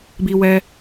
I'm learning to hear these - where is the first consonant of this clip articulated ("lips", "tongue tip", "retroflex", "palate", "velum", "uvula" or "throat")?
lips